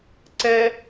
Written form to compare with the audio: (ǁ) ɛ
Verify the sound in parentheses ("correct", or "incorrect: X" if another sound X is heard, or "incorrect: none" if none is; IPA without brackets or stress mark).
incorrect: ǀ